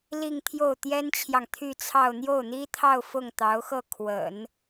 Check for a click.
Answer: absent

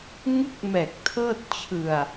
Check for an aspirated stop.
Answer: present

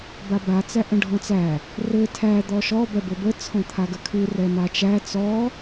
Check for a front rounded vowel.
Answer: absent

